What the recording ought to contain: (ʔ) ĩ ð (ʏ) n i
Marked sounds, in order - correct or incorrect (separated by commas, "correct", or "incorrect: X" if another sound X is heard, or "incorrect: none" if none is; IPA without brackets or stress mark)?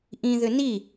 correct, correct